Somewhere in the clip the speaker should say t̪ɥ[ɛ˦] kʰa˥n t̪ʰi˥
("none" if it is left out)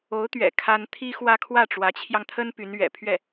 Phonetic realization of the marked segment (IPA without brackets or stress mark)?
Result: ɛ̰˨˩